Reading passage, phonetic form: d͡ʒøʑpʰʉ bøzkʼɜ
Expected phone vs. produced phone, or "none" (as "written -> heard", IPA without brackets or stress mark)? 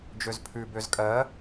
ʑ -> z